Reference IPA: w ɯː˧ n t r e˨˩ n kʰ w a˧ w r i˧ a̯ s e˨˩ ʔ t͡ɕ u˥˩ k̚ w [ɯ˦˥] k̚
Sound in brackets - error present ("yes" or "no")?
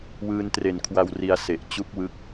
no